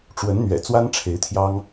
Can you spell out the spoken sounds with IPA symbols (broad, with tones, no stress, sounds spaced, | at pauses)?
ʈ͡ʂ w ə˧˥ n n̪ ɥ ɛ̰˨˩ t͡s w a˥ n ʈ͡ʂʰ e˧˥ ɪ̯ t̪ʰ j ɑ˥ ŋ